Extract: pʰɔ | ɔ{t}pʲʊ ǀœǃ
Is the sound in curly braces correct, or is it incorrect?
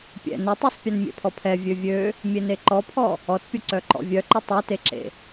correct